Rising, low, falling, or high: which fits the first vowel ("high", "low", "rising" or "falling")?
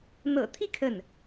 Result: low